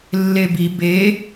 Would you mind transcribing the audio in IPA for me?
lː e b i b e

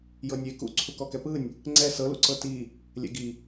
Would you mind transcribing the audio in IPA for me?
j ɤ nʲ e k ṵ ǀʰ u k ɔ k ɛ p ɯ nʲ | ŋ͡ǀ ɛ s ɤ l ṵ ǀ ɤ t i | lʲ ɛ̰ ɡ i

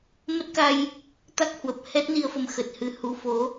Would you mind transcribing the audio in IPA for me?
m ə˦˥ t̚ k a˧ j | t̪ a˦˥ k̚ h w ə˨˩ p̚ h ɛ˦˥ t̚ n i˧ ə̯ f ə˧ m x ə˨˩ t̚ h ɨ˧ h u˨˦ f o˨˦

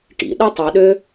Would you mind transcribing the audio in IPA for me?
ʈ ḭ ɗ ɯ tˤ u ɗ ø

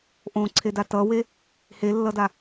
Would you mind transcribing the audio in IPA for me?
ʔ õ ǀʰ e d a t ʌ w e | h e lː ʌ d a

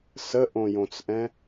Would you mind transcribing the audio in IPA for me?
s ə ʔ õ j õ t͡s ʔ ɛ̃

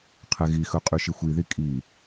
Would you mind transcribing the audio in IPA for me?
qʰ ɛ ɣ i x ɵ qʼ y ʃ i xʷ i ð i kʼ i

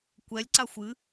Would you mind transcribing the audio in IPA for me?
kʷ ɛ lʲ ǀ a xʷ ɨ

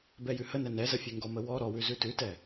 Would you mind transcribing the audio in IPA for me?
b ɛ j ʉ h ə n ɛ n ɛ z ə fʲ ʉ ŋ ɡ ɔ m ə w ɔ ɾ ɔ w ʉ z ʉ t ʉ t ɛ

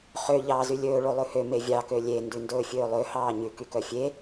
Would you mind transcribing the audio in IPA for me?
χ ø ʎ ɑː z y lʲ ɵː ɭ o lˠ ʉ h ø m e vʲ ɑ k ø lʲ e n d ʉ n d ɵː fʲ ɵː lˠ ø h ɑː ɲ ʉ k y k œ fʲ e

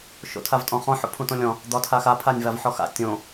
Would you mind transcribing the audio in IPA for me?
ʃ o̰ tʰ a v tʼ ɔ̃ χ ɔ̃ ħ o̰ pʰ ũ t õ lʲ ɔ̃ | d̪ ɒ tʰ a x a pʰ a nʲ v a v ħ ɔ x a̰ tʲ õ

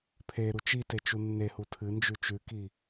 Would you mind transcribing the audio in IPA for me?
pʰ e ɾ u t͡ʃ i t e t͡ʃ u nː e h u tʰ ɨ n d͡ʒ ʉ t͡ʃ ʉ k i

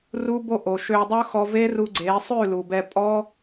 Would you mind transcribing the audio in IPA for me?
r u˦ b o˦ ʔ o˨ ʃ ø˧ dˤ ɵ˦ x ɔ˧ v e˦ r u˧ ɡ͡ǀ e˨˦ sˤ ʉ˦˨ l u˨ b ɛ˧ pʼ ɔ˦

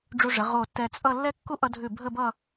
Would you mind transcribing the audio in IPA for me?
ɖ͡ʐ u˧ ʐ ə˩˧ ʁ o˧˩ tː ɛ˧ t͡sʼ ʌ˥˧ lː ɛ˥ kː u˥ ʔ ʌ˧ dʱ ʉ˧˩ bʱ ə˥˧ b ʌ˥˧

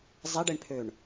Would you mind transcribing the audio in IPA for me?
zˤ e ɖ e ɳ pʰ ø ɳ

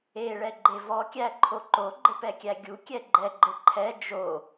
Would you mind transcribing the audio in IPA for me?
e ɭ ɛ ɡ͡ǃ e v ɔ kʲ æ ǃʰ o ǃ o ɡ͡ǃ ɘ p ɛ kʲ æ ɡʲ u kʲ ɛ ɡ͡ǃ ɛ ɡ͡ǃ ɘ ǃʰ ɛ d͡ʒ o

